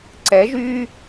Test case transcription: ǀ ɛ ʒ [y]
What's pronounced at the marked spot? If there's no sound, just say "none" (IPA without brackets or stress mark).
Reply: y